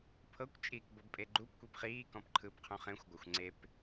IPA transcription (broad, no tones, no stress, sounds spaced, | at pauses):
pʰ ɤ kʷ t͡ʃʼ iː k b ɤ b pʼ e ɡ͡ǃ u p kʷ i p χ iː k ɔ̃ p ǃʰ ɯː p qʰ ũ χ ẽ xʷ ɡʷ a xʷ ŋ͡ǀ e p